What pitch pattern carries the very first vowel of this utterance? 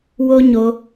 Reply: high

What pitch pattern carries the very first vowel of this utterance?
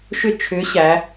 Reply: falling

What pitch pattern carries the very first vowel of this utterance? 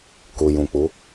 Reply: low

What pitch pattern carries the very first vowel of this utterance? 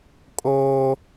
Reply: high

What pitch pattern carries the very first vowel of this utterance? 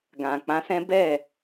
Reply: low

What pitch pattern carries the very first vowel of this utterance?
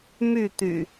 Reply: falling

